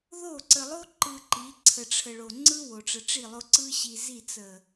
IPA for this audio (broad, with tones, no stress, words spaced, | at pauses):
ðo˦˨ ǀə˨lˠo˦ǃɯ˨ ǃi˨˦ ǀʰə˨ʈ͡ʂʰə˨ɭo˨ ŋ͡ǀɯ˦ wo˨ʈ͡ʂə˨ʈ͡ʂi˦˨lˠo˦ ǀɯ˦ɕi˨zi˦˨ t͡sə˨